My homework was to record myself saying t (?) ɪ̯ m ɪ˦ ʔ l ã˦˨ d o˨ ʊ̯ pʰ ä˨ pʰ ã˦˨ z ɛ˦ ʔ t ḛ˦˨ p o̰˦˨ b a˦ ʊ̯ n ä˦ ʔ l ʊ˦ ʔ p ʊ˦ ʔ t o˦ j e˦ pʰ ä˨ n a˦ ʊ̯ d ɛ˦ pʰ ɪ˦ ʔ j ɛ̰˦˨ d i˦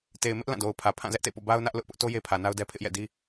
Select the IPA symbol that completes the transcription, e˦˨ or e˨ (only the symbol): e˨